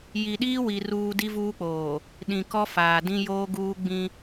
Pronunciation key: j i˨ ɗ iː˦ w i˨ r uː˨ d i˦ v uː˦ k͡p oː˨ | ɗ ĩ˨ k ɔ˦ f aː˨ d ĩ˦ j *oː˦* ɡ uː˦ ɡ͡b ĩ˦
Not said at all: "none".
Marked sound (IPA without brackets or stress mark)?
oː˦